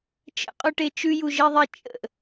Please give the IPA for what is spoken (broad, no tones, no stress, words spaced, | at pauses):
t͡ʃə̰qʼuʈe t͡ʃʉjuʒeðˤe t͡ʃʼə̰